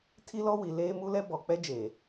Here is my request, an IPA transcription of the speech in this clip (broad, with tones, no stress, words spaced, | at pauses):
tʰi˦lɔ˦ wi˨ leː˦mu˦lɛ˦ bɔ˨k͡pɛ˦d͡ʒeː˨